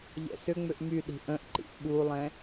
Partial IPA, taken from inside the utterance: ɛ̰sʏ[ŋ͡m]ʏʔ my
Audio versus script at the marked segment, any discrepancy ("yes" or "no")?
no